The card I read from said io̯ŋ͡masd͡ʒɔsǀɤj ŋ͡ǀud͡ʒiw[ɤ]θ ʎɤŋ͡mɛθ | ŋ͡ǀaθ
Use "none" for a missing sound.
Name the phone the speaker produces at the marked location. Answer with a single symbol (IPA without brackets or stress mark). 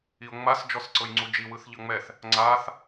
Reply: ɯ